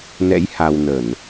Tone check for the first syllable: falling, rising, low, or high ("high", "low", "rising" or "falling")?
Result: rising